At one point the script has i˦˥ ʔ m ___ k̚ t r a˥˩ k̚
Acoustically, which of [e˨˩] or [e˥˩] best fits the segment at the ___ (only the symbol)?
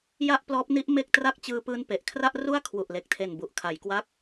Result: e˥˩